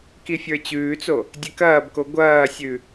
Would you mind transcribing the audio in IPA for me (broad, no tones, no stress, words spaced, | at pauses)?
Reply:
kifʲə˞t͡ɕʉːt͡so | dʲɛkɐːbko ɡʷɐːsʲʉ